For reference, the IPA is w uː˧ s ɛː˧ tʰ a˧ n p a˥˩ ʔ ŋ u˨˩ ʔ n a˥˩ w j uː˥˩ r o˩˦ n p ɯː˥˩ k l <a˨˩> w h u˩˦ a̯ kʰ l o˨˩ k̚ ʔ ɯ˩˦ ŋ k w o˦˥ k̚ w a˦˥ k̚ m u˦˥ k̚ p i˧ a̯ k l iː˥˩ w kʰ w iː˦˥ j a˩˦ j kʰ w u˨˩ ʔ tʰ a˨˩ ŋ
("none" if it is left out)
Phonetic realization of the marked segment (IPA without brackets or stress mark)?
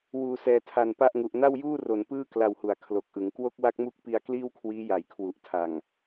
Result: a˧